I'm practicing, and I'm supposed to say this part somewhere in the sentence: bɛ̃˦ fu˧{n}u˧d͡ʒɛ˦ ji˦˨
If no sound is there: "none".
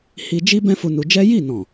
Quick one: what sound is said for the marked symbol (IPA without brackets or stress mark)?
n